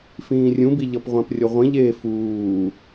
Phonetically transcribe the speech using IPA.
f ĩː rʲ ũ b i ʎ ʌ p ʁʷ ã p rʲ ʌ ʁʷ ĩ ʎ eː f uː

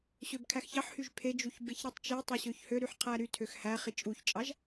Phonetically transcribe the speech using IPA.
ɕ ø b kʰ æ x ç ɑ ħ h y ʒ pʰ e d͡ʒ u ç b e ç ɾ i tˤ t͡ʃ e tˤ o ɕ ø ç h ø ɾ y ħ qʰ æ ɾ y tʰ ø x h æ χ i t͡ʃʼ u ç t͡ʃʼ ɑ ʒ

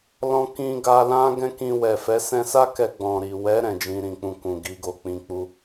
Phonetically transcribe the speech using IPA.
l ɔ̃˧ k ĩ˧ ɡ a˧ l ã˦ ɡ ɛ̃˦ k ĩ˧ w ɛ˨ f ɛ˨˦ s ɛ̃˧ s a˦ k ɛ˧ ɡ͡b ɔ̃˨ ɾ i˨ w ɛ˨˦ ɾ ɛ̃˦˨ d͡ʒ ĩ˧ ɾ ĩ˨ k͡p ũ˧ k ũ˨ ɡ i˨˦ ɡ o˧ k͡p ĩ˨ k͡p u˧

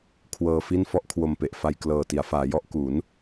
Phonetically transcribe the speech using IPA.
kʰ w ɤː˧ f i˥˩ n f ɔ˥˩ ʔ kʰ w o˧ m p e˨˩ ʔ f a˧ j k l ɤː˨˩ t i˩˦ a̯ f aː˩˦ j ɔ˦˥ ʔ k u˩˦ n

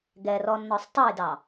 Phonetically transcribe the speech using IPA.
ɡ ɛ r ɔ nː ɔ sˤ tˤ ʌ j d ɑ

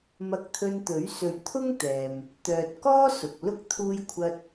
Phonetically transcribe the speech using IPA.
m ɐ˧ k̚ t̪ʰ ɵ˧ n t̪ ɵ˨˥ ɥ s ɵ˨˧ ɥ t̪ʰ ʊ˥ ŋ t̪ ɛː˨ m | t̪ œː˨ t̚ k ɔː˥ s ʊ˨ k̚ l ʊ˥ k̚ t̪ʰ uː˥ j kʷʰ ɐ˥ t̚

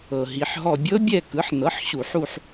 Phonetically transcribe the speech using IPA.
ɤ˩ ɦ i˩˧ ħ ɦ ɔ˦˨ bʲ ɤ˦˥ bʲ ɛ˦˨ k ɯ˩˥ ħ n ɤ˩˥ ħ ɕ u˧˩˧ ħ u˦˨ ħ

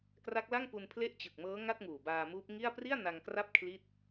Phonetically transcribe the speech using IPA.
k r a˦˥ k̚ l a˥˩ ŋ p u˧ n pʰ l e˥˩ ʔ t͡ɕ ɯ˨˩ k̚ m ɤː˦˥ ŋ a˥˩ t̚ ŋ uː˨˩ b aː˧ m uː˦˥ p̚ ŋ i˥˩ a̯ p r i˥˩ a̯ n a˧ ŋ k r a˥˩ p̚ kʰ l i˥˩ t̚

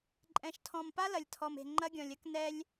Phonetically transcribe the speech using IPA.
ǃʼ ɛ̃˨ ʃ tʰ ɔ̃˨ m p a˦ l ɐ˨ lʲ tʰ ɔ˨ m e̤˨ ŋ͡ǃ ɐ˦ ɡʲ ɔ̃˨ lʲ ɐ˦ k n ɛ˦ lʲ

